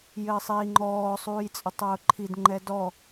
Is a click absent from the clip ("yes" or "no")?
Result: no